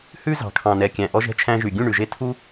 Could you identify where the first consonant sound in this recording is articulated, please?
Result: glottal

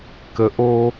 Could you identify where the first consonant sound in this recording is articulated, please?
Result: velar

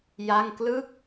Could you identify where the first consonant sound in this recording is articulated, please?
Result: palatal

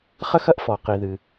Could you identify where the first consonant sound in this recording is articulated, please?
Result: uvular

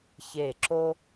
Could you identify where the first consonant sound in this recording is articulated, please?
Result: palatal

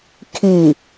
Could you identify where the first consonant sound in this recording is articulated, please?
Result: velar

